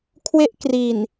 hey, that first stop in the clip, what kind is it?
aspirated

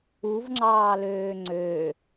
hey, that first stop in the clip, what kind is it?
click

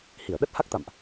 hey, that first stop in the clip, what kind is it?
implosive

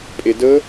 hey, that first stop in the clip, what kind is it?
ejective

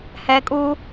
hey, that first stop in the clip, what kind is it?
ejective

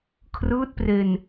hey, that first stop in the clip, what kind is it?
aspirated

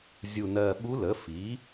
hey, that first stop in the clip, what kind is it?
implosive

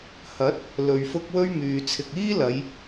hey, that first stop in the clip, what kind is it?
plain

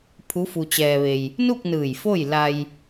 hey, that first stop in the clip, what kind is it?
aspirated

